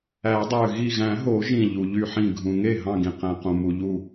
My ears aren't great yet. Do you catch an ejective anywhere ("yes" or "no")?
no